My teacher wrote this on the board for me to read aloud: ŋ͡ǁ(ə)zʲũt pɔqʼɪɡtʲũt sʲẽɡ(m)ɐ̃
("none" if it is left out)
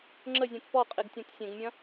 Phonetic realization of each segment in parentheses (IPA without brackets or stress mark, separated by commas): ə, mʲ